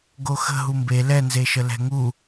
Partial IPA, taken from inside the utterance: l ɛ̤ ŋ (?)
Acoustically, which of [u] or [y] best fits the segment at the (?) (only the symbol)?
u